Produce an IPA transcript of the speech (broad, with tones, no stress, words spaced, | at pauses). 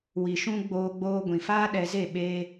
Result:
wi˧ʃũ˦ ɡ͡boː˧ɡ͡boː˧ ɡʷĩ˨faː˦ɗɛ˧ze˦˨ ɓe˦